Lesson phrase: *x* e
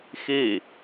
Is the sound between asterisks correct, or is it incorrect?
correct